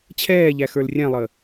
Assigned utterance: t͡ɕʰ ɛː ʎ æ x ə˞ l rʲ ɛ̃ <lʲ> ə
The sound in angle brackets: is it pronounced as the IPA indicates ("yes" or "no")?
no